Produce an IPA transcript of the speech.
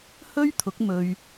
h ɵ˥ ɥ t̪ʰ ʊ˨˥ k̚ m ɵ˧ ɥ

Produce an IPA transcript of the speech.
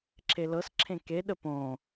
ǁʰ e l ɤ s ǁʰ ẽ k e ɗ ə p õ

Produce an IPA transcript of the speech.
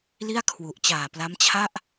l i˥˩ a̯ kʰ w u˨˩ ʔ t͡ɕ aː˨˩ p l a˦˥ m t͡ɕʰ a˥˩ ʔ

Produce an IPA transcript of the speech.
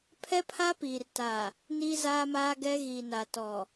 pʰ ɛ˦ pʰ a˦ p iː˨ r t a˨ | n i˦ z aː˦ m aː˦ ɡ ɛ˦ ɣ i˨ n a˨ t ɔ˨

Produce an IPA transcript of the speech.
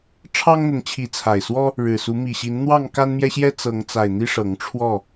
ʈ͡ʂʰ ɑ˦ ŋ n̪ ə˨˦ n t͡ɕʰ i˨˦ t͡sʰ a˨˩ ɪ̯ s w ɔ˦ | ɻ ɻ̩˨˩ s u˨˦ m i˨˩ ɕ i˨˦ n n̪ w ɑ˥˨ ŋ k a˦ n m j ɛ˦ ɕ j ɛ˦ t͡s ɤ˨˦ ŋ t͡s a˨˩ ɪ̯ n̪ i˦ ʂ ɤ˨˦ ŋ ʈ͡ʂʰ w ɔ˥˨

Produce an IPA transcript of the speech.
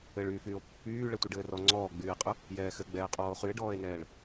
ɘ ɭ yː f yː o̯ pː yː ɭ ɛ tʷ i ɖ ɘː r ɔ ŋ͡ǀ ɔː ɡ͡b yː e̯ qʼ ʊ | j ɛː x ɘ ɡ͡b ɛː qʼ ɔː o̯ χ y e̯ ɖ ɔː e̯ n ɛː ɭ

